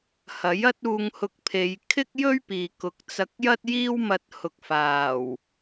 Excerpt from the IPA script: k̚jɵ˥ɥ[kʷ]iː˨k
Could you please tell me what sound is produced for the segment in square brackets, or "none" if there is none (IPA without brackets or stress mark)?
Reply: p